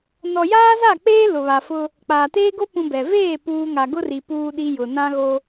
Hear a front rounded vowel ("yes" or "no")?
no